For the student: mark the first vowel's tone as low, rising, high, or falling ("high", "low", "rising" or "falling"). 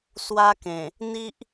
high